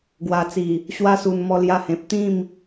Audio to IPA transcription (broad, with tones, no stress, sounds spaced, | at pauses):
ɡ w a˨˩ t͡s i˨˩ | ɕ w a˧ s u˨˩ n m ɔ˧ l j a˧ h ẽ˨ p̚ t̪ ĩ˥˧ m